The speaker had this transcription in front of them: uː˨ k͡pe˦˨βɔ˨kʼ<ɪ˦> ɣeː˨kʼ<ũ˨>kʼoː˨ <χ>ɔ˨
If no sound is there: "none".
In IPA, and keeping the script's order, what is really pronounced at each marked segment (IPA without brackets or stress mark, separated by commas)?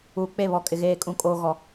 ɪ˨, ũ˨, ɣ